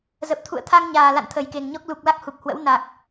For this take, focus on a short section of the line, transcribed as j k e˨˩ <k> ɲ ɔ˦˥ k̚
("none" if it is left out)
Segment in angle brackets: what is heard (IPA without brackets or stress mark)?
ŋ